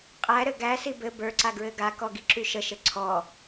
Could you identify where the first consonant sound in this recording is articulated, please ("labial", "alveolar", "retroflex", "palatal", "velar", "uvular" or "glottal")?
uvular